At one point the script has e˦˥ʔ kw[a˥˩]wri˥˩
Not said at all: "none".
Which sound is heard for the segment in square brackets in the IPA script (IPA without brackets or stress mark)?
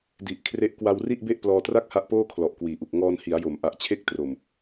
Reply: a˧